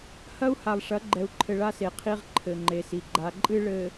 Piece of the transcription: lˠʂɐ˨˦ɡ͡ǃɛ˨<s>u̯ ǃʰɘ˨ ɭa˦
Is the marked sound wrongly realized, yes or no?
yes